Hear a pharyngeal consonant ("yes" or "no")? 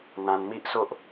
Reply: no